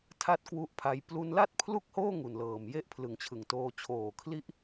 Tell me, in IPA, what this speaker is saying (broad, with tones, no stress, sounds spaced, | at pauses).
tʰ a˥˩ t̚ k w u˦˥ ʔ pʰ a˧ j p l u˧ n l a˥˩ t̚ pʰ l u˥˩ k̚ h oː˥˩ ŋ u˨˩ n l ɤː˨˩ m j e˥˩ ʔ pʰ l ɯ˨˩ ŋ t͡ɕʰ ɯ˨˩ ŋ t oː˧ t͡ɕʰ oː˨˩ kʰ l i˦˥ ʔ